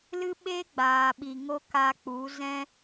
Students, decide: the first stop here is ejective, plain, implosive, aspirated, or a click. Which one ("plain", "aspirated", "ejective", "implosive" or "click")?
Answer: implosive